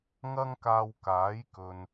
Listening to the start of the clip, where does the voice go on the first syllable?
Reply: high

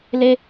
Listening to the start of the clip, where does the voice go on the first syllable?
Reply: high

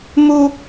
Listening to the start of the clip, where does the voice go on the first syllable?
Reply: high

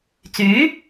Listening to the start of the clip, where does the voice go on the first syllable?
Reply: rising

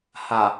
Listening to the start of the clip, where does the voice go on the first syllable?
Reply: low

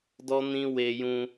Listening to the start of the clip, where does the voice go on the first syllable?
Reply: high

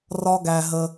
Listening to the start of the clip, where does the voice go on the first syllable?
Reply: high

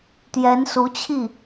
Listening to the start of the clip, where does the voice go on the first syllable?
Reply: rising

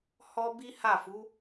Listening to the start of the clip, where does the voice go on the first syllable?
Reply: high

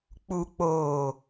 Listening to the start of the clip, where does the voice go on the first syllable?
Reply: low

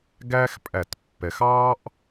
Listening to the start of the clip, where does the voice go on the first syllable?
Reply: high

